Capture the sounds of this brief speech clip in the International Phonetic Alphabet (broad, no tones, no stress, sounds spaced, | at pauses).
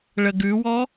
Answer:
ɭ ə ɡ ʉ w ɔ